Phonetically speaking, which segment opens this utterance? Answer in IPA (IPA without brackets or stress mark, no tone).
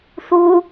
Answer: θ